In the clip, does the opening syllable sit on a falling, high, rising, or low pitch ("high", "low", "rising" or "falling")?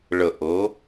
low